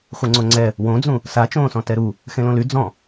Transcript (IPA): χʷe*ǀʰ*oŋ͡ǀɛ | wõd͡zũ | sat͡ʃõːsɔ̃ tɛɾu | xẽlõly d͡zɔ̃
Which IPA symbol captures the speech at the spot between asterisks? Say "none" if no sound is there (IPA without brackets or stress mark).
ŋ͡ǀ